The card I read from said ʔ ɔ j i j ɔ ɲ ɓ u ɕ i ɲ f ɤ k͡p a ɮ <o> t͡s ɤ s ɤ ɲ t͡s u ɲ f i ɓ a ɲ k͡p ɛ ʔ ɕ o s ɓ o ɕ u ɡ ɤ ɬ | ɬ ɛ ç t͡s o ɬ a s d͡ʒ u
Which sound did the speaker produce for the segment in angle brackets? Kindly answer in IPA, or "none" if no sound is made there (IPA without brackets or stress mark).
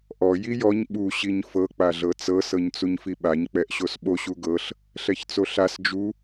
ɤ